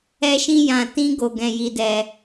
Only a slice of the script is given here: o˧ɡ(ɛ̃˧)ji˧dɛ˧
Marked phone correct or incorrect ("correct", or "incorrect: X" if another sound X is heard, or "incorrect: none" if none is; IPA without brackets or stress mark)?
correct